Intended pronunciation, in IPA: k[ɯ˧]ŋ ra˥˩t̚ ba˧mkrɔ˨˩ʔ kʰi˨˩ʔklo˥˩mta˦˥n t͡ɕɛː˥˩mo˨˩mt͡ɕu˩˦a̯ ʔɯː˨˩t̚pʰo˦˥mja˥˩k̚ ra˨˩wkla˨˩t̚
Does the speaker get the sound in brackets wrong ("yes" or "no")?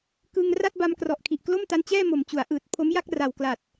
no